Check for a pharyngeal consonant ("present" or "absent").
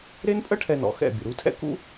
absent